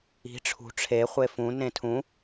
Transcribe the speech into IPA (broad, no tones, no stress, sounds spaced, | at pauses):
i̤ ʈ͡ʂʰ ṳ ʈ͡ʂʰ e χʷ e f ũ n ẽ tʰ ũ